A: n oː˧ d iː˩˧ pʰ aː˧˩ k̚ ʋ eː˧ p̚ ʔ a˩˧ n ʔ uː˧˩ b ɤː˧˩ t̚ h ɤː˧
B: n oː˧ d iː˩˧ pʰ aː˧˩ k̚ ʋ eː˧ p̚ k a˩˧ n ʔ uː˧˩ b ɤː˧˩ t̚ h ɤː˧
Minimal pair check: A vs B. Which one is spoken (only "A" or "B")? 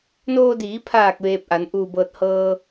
A